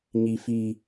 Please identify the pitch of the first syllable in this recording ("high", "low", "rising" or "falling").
high